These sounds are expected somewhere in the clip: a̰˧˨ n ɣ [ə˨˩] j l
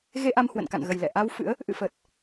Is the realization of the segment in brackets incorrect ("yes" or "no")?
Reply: no